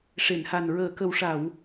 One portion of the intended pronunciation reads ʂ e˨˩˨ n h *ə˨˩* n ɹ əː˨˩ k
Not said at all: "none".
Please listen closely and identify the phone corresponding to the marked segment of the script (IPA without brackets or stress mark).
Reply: a˨˩